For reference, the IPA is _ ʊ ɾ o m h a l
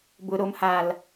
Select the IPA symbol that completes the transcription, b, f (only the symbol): b